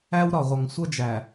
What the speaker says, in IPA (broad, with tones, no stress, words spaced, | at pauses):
æ˦wɾɒ˨ʁʷʌ˨ŋ sʷʌ˦d͡ʒæ˨